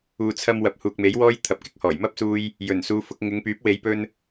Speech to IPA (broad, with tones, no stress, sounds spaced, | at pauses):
uː˨ t͡sʰ ɐ˧ m w ɐ˨ p̚ h uː˨ k̚ m e˨˥ j w ɔː˥ j t̪ʰ ɐ˨ p̚ k ɪ˥ k̚ h ɔː˨˩ j m ɐ˥ p̚ s uː˧ j | j ɵ˨˩ n s uː˨˧ f ʊ˧ k̚ ŋ ɪ˨˧ ŋ p yː˨˥ p̚ w e˨˧ j p ɵ˧ n